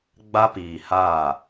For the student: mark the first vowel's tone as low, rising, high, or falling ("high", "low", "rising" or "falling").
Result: high